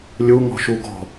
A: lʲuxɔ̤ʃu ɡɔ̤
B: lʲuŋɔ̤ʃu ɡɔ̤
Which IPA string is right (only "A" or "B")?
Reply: B